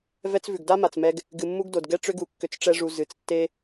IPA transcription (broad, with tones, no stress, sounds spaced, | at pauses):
v ɛ˦ t͡s v ʉ˨ ɡ d a˦ m a˨ t͡s m ɛ˧ ɡ | ɡ ɨ˨ mː u˧ ɡ d o˨ d ɡ ɛ˧ ʈ͡ʂ ʏ˧ ɡ u˨ kː ʏ˧ t͡s ʈ͡ʂ ɛ˦ ʐ u˧ z ɨ˨ t͡s tː e˦